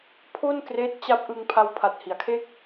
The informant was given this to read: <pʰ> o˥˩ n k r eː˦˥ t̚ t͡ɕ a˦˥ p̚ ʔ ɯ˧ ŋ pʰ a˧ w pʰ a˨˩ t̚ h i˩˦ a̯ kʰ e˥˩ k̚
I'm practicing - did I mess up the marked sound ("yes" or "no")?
no